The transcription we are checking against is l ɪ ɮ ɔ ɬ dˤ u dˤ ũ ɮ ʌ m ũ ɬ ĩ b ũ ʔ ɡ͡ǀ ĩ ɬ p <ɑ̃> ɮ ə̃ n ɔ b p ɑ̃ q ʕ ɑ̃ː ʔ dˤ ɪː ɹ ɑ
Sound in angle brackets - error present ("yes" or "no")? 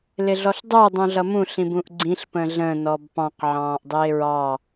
yes